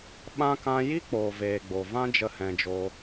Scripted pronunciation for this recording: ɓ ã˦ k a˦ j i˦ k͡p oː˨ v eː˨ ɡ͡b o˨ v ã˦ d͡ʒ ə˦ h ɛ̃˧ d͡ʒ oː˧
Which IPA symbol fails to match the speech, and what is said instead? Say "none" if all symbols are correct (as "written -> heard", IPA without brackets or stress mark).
a˦ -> ã˦